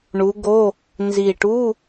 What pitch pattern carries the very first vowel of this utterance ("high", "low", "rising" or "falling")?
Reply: rising